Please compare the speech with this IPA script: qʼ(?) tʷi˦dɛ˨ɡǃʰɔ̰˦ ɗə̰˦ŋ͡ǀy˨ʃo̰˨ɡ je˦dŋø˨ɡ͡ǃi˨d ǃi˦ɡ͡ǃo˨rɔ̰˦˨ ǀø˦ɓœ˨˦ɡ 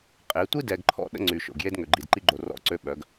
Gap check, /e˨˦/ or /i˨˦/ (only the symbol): e˨˦